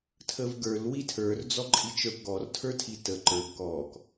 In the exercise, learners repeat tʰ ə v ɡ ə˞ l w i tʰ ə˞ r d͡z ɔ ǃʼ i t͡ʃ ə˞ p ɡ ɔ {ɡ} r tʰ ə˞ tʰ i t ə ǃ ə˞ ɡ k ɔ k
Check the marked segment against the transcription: incorrect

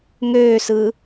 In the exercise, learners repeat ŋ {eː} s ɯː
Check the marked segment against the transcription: incorrect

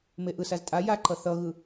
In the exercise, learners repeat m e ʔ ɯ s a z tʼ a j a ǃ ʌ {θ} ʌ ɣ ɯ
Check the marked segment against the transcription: correct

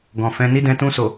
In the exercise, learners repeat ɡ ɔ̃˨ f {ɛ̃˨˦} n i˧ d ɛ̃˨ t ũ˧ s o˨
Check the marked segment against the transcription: correct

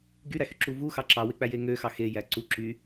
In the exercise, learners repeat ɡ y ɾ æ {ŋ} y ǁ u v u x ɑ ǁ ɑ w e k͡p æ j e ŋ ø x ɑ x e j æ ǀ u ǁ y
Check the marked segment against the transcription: incorrect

